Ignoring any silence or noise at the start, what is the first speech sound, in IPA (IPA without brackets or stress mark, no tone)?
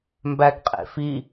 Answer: m